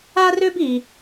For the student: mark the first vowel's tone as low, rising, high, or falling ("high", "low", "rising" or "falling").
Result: high